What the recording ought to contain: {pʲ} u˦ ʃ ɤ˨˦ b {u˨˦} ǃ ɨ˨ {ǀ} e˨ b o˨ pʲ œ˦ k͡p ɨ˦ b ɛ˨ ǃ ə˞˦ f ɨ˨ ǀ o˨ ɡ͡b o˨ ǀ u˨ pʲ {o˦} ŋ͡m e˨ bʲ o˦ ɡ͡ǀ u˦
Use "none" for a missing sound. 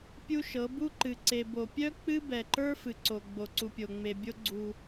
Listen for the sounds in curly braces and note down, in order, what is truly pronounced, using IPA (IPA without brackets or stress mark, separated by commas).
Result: pʲ, u˦, ǀ, o˨